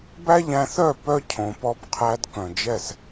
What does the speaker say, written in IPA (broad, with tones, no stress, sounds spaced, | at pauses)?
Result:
b æ˦ ʎ æ̃˧ θ œ˦˨ p œ˦ cʰ õ˨ p ɔ˧ b qʰ æ˧ d k œ̃˨ d͡ʒ ɛ˦˨ s